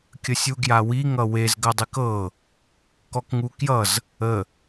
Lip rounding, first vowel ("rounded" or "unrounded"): unrounded